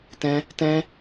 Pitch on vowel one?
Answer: high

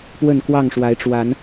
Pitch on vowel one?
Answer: falling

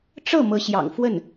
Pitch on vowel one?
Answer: falling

